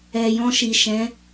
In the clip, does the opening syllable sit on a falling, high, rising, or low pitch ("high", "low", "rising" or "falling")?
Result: low